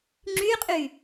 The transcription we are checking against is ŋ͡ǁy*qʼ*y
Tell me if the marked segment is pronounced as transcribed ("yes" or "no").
yes